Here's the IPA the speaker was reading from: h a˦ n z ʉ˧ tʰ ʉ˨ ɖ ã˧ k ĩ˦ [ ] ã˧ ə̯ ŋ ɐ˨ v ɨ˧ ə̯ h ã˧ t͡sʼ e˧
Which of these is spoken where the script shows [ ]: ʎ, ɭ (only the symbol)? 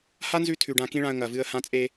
ɭ